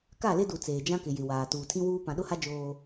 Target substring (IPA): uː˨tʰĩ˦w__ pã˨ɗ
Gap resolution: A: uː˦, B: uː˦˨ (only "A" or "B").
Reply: A